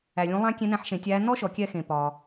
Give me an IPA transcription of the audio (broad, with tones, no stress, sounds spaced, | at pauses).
æ˩ lʲ ũ˩˧ lˠ æ̃˧˥ kʲ ẽ˧˥ n æ̃˧˥ ħ ʃ ẽ˩˧ tʲ æː˧˥ n ɔ˥ ʃ ɔ˩˧ kʲ ɛ˧ x ẽ˩ p ɒ˩